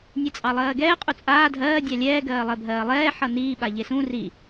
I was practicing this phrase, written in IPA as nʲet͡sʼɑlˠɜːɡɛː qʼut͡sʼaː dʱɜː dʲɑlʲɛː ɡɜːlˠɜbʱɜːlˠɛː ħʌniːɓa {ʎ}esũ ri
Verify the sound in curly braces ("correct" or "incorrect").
correct